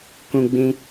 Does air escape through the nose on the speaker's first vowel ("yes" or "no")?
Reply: yes